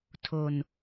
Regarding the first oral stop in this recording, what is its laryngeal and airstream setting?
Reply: aspirated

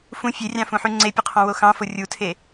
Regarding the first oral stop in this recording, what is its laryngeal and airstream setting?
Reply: click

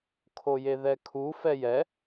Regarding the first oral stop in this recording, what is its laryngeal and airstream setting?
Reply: aspirated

